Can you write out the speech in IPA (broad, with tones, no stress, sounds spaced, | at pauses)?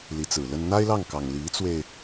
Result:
l i˧˥ t͡s ɹ̩˨˩ l ə˥ n n̪ a˥ ɪ̯ l ɑ˥˩ ŋ k ɑ˨˩ ŋ l i˧˥ t͡s w e˧ ɪ̯